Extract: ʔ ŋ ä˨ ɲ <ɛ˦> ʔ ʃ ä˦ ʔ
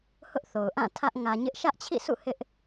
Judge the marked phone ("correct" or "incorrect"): incorrect